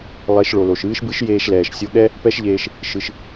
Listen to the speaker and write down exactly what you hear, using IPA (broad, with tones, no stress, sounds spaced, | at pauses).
lˠ e˧˥ ʃ ɭ o˩ l o˩ ʃ ɨː˧˥ ʃ b ɨ˧˥ ʃ j eː˧ ʃ l ɛː˩ ʃ sʲ o˧ ɠ ɛ˥ | p ɛ˥ ʃ ʎ eː˧ ʃ | ʃ ɨ˩ ʃ